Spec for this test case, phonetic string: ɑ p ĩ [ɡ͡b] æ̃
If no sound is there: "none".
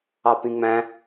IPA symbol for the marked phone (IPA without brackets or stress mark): ŋ͡m